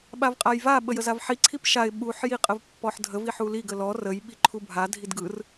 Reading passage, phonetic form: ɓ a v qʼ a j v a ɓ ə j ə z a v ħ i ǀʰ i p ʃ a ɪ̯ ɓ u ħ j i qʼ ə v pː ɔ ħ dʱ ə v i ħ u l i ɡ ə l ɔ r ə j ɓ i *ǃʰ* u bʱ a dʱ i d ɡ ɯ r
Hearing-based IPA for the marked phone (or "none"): ǃʰ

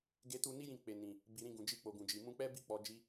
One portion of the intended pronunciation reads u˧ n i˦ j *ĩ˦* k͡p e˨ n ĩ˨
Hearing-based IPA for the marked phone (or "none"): ĩ˦˨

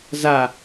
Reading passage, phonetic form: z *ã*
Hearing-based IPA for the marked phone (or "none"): a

